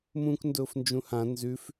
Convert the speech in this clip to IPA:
mũːkndʊːfnd͡ʒũhã nzʉf

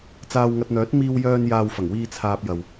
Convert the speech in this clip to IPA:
t͡saː˧wŋɐ˧t̚n̪œː˨˥t̚ miː˧wjœː˧n jaː˧wfɐ˨˩ŋwiː˧ t͡sʰaː˨p̚ jɐ˨w

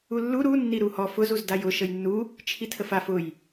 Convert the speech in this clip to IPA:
ulːu ɾu nːiɾuhɔ fʊz uzdajʊ ʃəjnːu | t͡ʃʰitʰəfaf ʊj

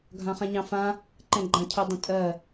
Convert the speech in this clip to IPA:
ɡʱãχãɲɑ̃fã | ǃɛ̃ɡ͡ǃãcʰɵ dˤə̃tʼɜ

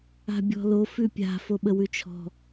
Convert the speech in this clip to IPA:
a̤bʲɔ̤lo fʉpʲa̤ foɓəwʉt͡ʃʰɔ̤

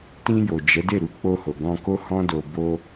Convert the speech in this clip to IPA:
tĩ˧jo˨ d͡ʒɛ˨˦de˦˨ɾu˧ k͡po˧ho˨ɡɔ̃˧ ko˦hɔ̃˦do˧ bo˦

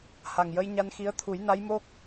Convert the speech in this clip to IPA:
ha˨˩ŋjə˧jɲa˧nxi˧˥ə̯ t̪ʰu˨˩˦jna˧˥jmo˦˥k̚

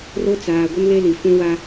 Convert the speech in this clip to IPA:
ro˦ t͡saː˨ ɡʷɪ˦nle˦li˨ fũ˦wa˦

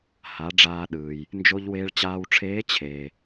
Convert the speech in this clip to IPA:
ha˩˧ ɖ͡ʐaː˧ɗɯː˩j | nd͡ʒo˧ʎweː˧ɭt͡ɕaː˧wʈ͡ʂʰeː˧˥ t͡ɕʰeː˩

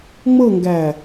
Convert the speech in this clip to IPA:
ŋ͡mɤŋɡæ

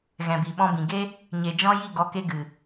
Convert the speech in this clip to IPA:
ɣɛ̃˨bi˨ ɓɔ̃˧bĩ˨ɡe˦ | ɲe˨d͡ʒɔ̃˦ji˦˨ ɡɔ˧ke˦ɡɨ˨

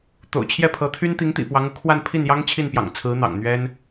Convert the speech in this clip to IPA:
t̪o̰˨˩ʊ̯t͡ɕʰjɛ˥˩pʰɤ˧˥t̪ʰy˥n t̪i˧˥ŋt̪ḭ˨˩pwɑ˧˥ŋ u˧˥kʰwa˥˧n pʰi˥˩njɑ˥ŋ t͡ɕʰi˥˩npjɑ̰˨˩ŋt͡sʰɹ̩˧˥ n̪ɑ̰˨˩ŋn̪ɥɛ˥n

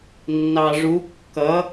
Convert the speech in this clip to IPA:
nːɑʐu kːʌ

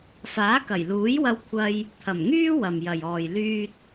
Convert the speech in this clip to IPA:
faː˨˥kɐ˨˩jluː˨˥jwɐ˧w kʷʰɐ˧j | t̪ʰɐ˨˩mŋyː˥ wɐ˨mjɐ˨jɔː˨j lyː˧t̚

